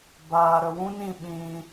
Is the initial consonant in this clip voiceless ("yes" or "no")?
no